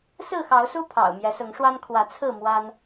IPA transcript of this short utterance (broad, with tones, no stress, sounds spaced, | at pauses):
s ɹ̩˥˨ x ɑ˨˦ ʊ̯ s u˦ pʰ ɑ̰˨˩ ʊ̯ m j ɛ˨˦ s ʊ˨˦ ŋ ʂ w a˦ n kʰ w ä˨˦ t͡sʰ ɹ̩˥˨ m w a˦ n